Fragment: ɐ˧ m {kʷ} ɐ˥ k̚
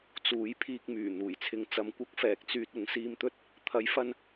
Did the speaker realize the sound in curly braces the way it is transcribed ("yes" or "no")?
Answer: yes